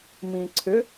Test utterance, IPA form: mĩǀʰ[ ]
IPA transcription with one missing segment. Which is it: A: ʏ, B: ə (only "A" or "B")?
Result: A